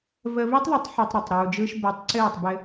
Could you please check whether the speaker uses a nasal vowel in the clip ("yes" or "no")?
no